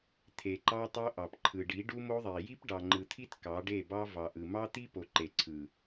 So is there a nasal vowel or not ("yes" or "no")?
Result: no